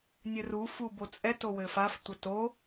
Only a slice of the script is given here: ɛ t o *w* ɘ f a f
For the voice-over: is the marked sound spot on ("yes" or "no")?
yes